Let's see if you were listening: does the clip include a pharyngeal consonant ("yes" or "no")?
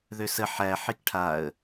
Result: yes